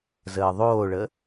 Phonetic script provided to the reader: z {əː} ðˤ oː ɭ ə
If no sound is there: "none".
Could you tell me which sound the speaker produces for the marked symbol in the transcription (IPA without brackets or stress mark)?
əː